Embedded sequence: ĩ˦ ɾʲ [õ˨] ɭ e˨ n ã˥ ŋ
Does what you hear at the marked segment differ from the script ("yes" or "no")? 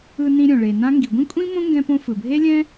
no